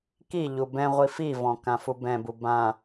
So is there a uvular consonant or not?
yes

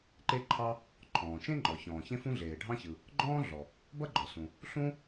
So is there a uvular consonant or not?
no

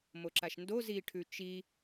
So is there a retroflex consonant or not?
yes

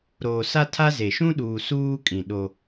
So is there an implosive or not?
yes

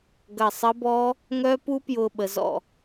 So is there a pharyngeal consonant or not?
no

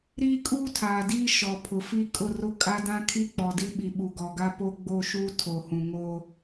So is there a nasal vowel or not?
yes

